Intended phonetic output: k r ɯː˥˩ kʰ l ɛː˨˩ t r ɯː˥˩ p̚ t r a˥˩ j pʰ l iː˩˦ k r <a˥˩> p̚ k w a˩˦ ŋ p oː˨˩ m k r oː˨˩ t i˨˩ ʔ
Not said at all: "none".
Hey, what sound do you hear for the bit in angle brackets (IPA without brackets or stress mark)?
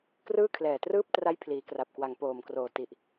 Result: a˨˩